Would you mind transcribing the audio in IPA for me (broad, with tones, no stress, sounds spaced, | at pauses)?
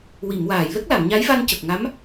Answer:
w i˨˩˨ m w aː˨˩˨ j l ə˦˥ k̚ l a˨˩˨ m ɲ a˧˥ j v a˧ n c ə˨˩ k̚ ŋ a˧˥ m